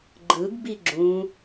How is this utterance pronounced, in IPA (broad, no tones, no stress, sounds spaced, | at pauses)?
ɡ͡ǃ ɯ ɡ b i ɡ͡ǁ ũ